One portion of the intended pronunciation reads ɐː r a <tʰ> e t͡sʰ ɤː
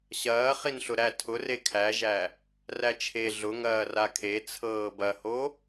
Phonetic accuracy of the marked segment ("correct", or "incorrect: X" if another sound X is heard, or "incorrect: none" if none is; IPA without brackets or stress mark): incorrect: kʰ